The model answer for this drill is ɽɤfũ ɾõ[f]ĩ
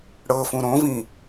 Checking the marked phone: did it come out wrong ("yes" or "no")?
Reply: yes